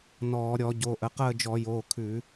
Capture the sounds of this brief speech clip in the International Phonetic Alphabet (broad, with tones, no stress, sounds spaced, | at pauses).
n ɔː˧˩˧ ɾʲ ɔ˧˩˧ ɟ o˩˧˩ ʔ ə˩˧ q əː˦˨ d͡ʒ ɔ˧˩˧ j oː˩˧˩ kʰ ʉ˧˩˧